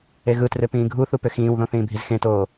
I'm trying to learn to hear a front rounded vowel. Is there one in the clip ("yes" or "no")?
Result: yes